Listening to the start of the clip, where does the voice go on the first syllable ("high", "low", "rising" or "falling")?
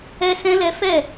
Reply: high